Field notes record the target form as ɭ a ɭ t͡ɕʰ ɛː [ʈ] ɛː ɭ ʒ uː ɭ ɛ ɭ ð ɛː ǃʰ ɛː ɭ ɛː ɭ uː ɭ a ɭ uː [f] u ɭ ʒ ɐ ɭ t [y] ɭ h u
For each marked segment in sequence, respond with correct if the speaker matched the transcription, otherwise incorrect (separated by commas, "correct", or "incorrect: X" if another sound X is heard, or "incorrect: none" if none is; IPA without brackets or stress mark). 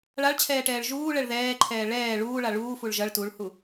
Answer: correct, correct, incorrect: u